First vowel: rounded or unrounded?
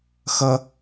unrounded